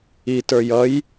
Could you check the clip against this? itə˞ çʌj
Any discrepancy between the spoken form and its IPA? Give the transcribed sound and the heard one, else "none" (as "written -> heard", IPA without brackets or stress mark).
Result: ç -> j